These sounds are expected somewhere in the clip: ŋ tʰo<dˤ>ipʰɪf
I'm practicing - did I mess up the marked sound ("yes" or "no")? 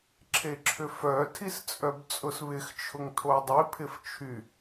no